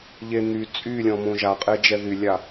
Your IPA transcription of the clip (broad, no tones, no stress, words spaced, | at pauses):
ʎe n̪y t͡sʼylʲɔ̃mõ ʒaqʼed͡ʒɛ ðylʲa